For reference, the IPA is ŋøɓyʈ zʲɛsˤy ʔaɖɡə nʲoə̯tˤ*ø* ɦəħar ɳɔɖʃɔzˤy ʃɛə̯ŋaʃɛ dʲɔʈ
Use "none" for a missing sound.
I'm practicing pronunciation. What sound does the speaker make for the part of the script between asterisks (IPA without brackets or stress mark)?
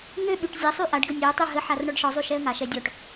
y